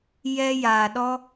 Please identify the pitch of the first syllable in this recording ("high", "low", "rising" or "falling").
high